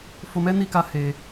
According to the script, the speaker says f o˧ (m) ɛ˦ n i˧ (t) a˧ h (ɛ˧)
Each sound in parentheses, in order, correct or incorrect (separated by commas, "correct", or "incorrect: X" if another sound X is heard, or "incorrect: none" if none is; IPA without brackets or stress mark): correct, incorrect: k, incorrect: e˧